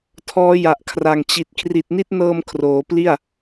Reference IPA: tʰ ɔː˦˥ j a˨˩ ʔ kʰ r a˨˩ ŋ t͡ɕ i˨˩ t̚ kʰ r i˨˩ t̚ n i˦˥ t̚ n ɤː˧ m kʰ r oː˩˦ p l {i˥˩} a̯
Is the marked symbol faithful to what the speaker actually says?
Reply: yes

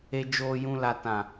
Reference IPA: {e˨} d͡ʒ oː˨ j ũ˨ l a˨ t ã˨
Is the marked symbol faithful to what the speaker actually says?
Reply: yes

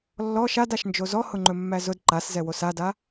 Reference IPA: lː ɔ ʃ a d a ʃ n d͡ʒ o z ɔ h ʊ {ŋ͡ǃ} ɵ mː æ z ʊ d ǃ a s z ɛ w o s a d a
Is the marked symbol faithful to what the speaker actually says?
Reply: yes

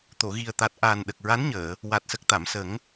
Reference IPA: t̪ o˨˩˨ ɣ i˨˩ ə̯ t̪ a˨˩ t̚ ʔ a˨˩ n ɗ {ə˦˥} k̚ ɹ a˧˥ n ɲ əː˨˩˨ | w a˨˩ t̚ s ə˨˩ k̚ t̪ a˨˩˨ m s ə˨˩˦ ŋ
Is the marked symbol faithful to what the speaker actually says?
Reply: no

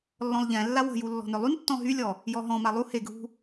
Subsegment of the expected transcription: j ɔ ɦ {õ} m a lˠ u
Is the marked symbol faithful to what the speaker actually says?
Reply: no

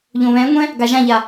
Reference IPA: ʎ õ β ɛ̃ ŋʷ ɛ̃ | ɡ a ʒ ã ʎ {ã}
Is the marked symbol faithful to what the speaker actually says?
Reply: no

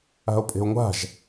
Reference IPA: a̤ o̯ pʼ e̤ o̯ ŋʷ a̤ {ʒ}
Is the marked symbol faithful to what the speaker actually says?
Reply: yes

